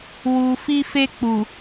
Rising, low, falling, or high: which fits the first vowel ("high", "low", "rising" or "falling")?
low